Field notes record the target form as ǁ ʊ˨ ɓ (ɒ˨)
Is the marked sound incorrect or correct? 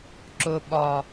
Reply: correct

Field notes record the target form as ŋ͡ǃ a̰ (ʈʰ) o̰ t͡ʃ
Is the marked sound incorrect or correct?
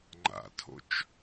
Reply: incorrect: tʰ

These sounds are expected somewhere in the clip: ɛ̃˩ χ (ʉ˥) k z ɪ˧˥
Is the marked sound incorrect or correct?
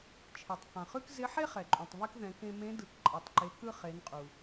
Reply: correct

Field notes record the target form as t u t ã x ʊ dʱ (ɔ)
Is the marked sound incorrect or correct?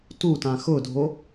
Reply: incorrect: o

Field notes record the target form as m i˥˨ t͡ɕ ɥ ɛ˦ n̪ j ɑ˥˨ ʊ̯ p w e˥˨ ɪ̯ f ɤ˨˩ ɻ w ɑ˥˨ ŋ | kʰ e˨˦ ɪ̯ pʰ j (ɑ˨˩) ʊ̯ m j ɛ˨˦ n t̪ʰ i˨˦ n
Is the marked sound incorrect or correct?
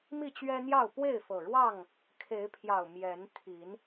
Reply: correct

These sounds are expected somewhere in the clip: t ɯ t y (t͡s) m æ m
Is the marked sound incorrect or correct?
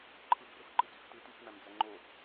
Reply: correct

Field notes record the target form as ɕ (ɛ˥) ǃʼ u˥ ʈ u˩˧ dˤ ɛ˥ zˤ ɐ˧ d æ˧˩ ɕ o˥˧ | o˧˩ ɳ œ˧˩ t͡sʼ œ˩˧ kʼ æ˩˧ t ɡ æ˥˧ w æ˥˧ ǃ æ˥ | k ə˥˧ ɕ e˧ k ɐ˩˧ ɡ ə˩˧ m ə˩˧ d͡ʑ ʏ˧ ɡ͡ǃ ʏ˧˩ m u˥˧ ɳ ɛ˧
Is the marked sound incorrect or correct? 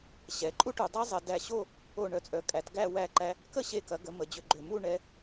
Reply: incorrect: ɛ˩˧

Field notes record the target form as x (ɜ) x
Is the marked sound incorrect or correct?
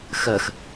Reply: correct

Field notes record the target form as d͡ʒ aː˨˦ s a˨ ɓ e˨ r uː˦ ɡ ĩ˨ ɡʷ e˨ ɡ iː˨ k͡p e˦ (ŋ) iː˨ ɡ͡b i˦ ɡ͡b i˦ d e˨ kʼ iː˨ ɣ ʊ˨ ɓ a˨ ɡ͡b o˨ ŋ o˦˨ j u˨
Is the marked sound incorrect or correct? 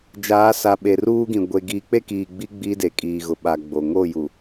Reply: incorrect: k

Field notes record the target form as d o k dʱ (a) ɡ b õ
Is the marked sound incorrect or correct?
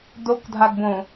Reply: correct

